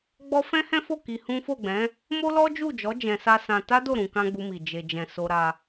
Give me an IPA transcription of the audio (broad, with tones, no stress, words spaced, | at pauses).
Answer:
ɡ͡bɔ˦ fɛ̃˦hɛ̃˦fo˦˨ ki˧hũ˦ fo˦˨ɡ͡bɛ̃˨˦ | mo˦lɔ˦d͡ʒu˦˨d͡ʒɔ˨˦ d͡ʒɛ̃˧sa˦ sã˧ ta˦do˦˨ ɾũ˧kã˦ɡ͡bu˧mi˨ d͡ʒe˨d͡ʒɛ̃˨ so˧ɾa˧